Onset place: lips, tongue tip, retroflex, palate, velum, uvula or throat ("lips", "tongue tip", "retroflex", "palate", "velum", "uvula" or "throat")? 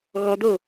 velum